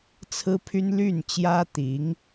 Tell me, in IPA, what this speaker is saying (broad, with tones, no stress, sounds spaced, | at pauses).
t͡sʰ ɹ̩˥ pʰ y˥ n l y˥˩ n t͡ɕ j ä˥ t̪ i˧˥ ŋ